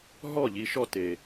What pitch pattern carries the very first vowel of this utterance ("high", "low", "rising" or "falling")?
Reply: falling